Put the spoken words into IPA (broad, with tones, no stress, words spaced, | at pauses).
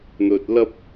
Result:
n̪ɵ˧t̚lɐ˥p̚